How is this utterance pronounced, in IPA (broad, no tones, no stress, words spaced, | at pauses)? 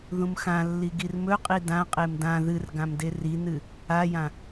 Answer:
ðũmxãlːi ɡirmɵqʼi dãqʼem dã ðɨr ɡãmderinɨ | ajã